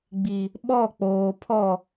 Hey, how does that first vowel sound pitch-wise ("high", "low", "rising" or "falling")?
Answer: low